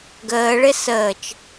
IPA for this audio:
ɡəːɭɪ səːt͡ʃ

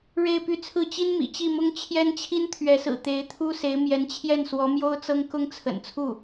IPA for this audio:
ɻe˥˧ɪ̯py˥˧t͡sʰɹ̩˥˩ t͡ɕi˥nmḭ˨˩t͡ɕi˥˩mʊ˥ŋ t͡ɕʰjɛ˥nt͡ɕʰi˥nt̪ʰɥɛ˧˥sɹ̩˨˩ t̪e˧˥ɪ̯t̪ʰu˥se˧˥ɪ̯ mjɛ˧˥nt͡ɕʰjɛ˥˩nswɔ˧˥ mjo˥ʊ̯t͡sɤ˥ŋ kʊ˥ŋt͡sʰə̰˨˩n t͡sʰu˥˩

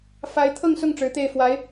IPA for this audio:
fa˧˥ɪ̯t̪ʰɤ˥˧ŋsʊ˥˩ŋ ʈ͡ʂɻ̩˧˥t̪e˥˩ɪ̯fwa˧˥ɪ̯

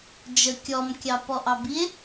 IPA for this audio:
d͡ʒə kʲɔmkʲɑ pɔʔɑbie̯

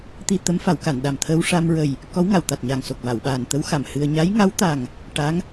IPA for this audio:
t̪i˧ t̪ə˧˥m fa˨˩˦wka˨˩˨n ɗa˨˩mt̪ʰəː˧wʂa˧mɹə˨˩j | kɔ˧˥wŋa˨˩˨wt̪a˨˩t̚ɲa˨˩ŋ so˨˩k̚va˨˩˨wɓaː˨˩n t̪ə˧˥wxa˨˩˨m hɨ˧ə̯ ɲa˧˥jŋa˧˥wt̪a˨˩ŋ | ʈa˧˥ŋ

